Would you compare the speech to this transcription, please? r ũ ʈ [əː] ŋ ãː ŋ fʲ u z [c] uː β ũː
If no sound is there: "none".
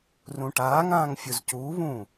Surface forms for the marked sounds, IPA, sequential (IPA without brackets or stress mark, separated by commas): aː, c